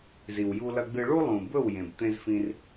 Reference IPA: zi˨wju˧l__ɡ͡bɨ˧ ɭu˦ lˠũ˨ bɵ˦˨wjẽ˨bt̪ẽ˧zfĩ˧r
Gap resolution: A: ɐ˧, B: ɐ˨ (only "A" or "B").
A